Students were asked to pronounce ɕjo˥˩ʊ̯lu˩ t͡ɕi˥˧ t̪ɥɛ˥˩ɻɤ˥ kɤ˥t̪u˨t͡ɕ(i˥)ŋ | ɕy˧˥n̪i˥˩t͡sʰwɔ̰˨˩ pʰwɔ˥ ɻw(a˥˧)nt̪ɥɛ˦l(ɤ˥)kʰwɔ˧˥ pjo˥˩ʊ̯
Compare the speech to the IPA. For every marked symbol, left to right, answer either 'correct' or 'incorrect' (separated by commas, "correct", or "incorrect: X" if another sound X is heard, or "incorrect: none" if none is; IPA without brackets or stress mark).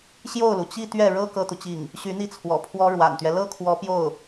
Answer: incorrect: i˥˩, incorrect: a̰˨˩, correct